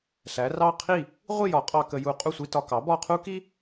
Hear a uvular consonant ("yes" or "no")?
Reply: yes